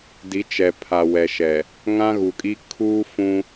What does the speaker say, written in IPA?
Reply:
di˨˦t͡ʃɛ˨pʰa˨ wɛ˨ʃɛ˨ | ŋã˦ɣu˨kʼi˦ kʰuː˦fũ˦

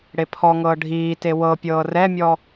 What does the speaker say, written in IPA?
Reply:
ɽepʰɔŋɤː ɖʱiːte wɤpʲɤː rɛmʲɔ

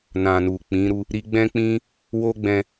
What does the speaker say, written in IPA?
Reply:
nã˨nu˨k͡pĩ˨˦ɾu˦ | ɾi˧ɡ͡bɛ̃˦k͡pĩ˦ | wo˦ɡ͡bɛ̃˧

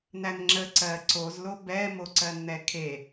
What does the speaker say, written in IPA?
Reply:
nænŋ͡ǁə ǀɜ ǀozlo bɛmoǀɜn n̪ɛkʰe

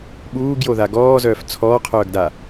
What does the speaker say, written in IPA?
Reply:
ɓuːɡjoða ɡɔːzœːf t͡sʰɔːqʰœːɡda

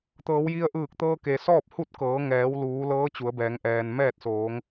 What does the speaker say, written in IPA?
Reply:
t̪ɤː˩˧wji˧ə̯ʔɯː˧˩k̚ t̪ɤː˧ke˩sɔː˥˨p̚ hu˥˨t̚kɤː˩˧ ŋɛː˩˧wluː˩˧lɤː˧˥ t͡ɕu˩˧ə̯bɛː˩˧ŋ ʔɛː˩n mɛː˥˨t̚soː˩˧ŋ

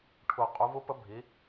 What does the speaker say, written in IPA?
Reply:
ʈʰu˩ qʼu˩˧vu˧˥pə˧˥ bʱi˩˧

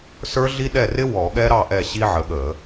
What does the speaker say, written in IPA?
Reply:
sə˞˦˥ɮi˦˥ɗɛ˥˩ rɪ˦˥ wɔ˧˩˧ɠɛ˦˥ɾɑ˥˩ ʔɛ˥˩ɕi˦˥ ʕə˨˦ɠə˧˩˧

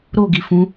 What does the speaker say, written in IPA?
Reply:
ɾoɡi fũ

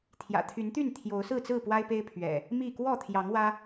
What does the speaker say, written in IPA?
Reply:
t̪ʰjä̰˨˩t̪ʰy˨˦nt̪y˥˨n t̪ʰjo˨˦ʊ̯sɹ̩˥˨t͡sɹ̩˥˨pwa˦ɪ̯ pe˦ɪ̯pʰɥɛ̰˨˩ | mi˥˨ kwɔ˥˨t̪ʰjɑ˨˦ŋwä˦

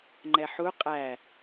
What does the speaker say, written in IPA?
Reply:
ŋ͡ǃɛħu qʼæ

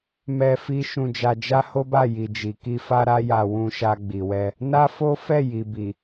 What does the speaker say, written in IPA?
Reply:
mɛ˧ fi˦ ʃũ˧d͡ʒa˧ d͡ʒa˦ho˦ba˦˨ ji˨d͡ʒi˨ki˧ fa˦ɾa˦ja˧ wũ˧ʃa˧ɡ͡bi˨wɛ˧ | na˦fo˦ fɛ˦˨ji˨bi˨

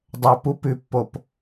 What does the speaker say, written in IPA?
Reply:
dˤɵpupʉpːop

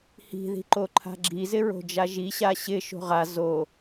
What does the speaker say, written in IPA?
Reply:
hi̤ði̤ǃo ǃʰa̤ɡ͡ǁizɪ ɹo̤d͡ʒaʒi ɕaɕɪ ʃo̤ʁa zo

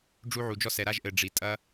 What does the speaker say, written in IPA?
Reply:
ɖ͡ʐu˦ʕu˧d͡ʒɔ˦ sɛ˧ɾa˦ʒʔɘ˧ ɖ͡ʐi˧ tʼɐ˦

